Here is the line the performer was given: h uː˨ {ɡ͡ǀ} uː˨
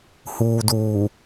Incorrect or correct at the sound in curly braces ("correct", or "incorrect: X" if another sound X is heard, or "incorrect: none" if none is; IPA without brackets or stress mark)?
incorrect: d